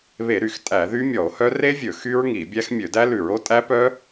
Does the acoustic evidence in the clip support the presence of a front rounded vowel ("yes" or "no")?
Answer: yes